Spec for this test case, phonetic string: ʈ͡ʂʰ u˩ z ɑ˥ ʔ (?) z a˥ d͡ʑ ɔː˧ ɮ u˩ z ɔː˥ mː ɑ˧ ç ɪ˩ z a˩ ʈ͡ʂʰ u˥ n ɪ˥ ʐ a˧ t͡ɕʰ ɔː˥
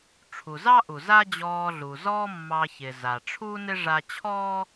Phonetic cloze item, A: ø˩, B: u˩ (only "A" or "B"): B